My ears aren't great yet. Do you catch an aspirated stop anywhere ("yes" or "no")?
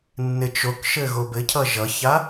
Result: yes